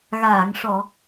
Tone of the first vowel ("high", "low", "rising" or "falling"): low